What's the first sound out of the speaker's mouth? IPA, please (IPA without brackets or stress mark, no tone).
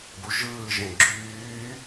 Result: b